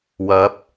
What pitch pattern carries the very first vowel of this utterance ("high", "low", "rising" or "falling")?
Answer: rising